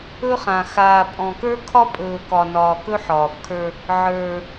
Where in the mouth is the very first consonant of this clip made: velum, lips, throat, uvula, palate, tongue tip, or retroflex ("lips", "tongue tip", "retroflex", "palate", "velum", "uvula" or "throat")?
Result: uvula